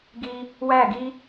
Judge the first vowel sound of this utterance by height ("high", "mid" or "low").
high